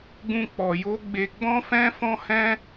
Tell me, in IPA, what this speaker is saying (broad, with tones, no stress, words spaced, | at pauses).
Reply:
ɡũ˦k͡pɔ˧jo˦ ɡ͡be˧ ɡ͡bɔ̃˦fɛ̃˦fɔ̃˦ hɛ̃˦